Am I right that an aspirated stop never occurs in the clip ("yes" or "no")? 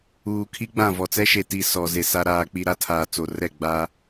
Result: no